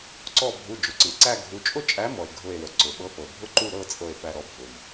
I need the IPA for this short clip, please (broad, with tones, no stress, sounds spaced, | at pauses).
ǀ ɔ˧˩ bʱ u˩˧˩ d͡ʒ ʊ˩ ǀ ɯ˩ ǀ æ˥˨ ɡʱ u˨˥ t͡ʃʼ ʊ˥˨ t͡ʃʼ æ˨˥ m ɔ˩ e̯ ɡʱ ʊ˧˩ e̯ w ə˩ ǀ ʊ˩ ɓ ɤ˨˥ f ɤ˩ bʱ ʊ˥˨ ǃ u˥˨ ɾ ɤ˥˨ t͡sʼ ɤ˧˩ e̯ f æ˧˩ ɾ ɔ˨˥ bʱ ʊ˩ m